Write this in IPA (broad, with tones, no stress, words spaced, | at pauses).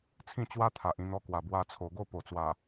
t͡sʰĩ˥˧t͡ɕwa˦t̪ʰa˨ʔ ĩ˧n̪ɔ˧kwa˨˩ bwa˧t͡sʰo˨˩ ɡo˥˧po˨˩t͡swa˨˩